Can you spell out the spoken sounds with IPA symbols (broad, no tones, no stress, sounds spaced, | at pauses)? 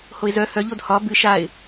h o ɪ̯ z œ h œ ʎ o d h ɒ b ɨ ʃ a ɪ̯